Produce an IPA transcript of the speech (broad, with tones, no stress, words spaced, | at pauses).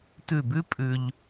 tʉ˧˩bʉ˥ pʼʉ˧ʎ